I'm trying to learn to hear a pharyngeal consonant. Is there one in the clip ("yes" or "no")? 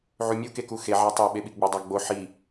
yes